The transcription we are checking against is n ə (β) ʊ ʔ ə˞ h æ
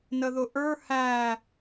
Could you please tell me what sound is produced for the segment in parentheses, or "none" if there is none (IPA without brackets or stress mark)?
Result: ð